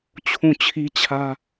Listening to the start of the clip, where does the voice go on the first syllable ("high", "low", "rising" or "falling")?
falling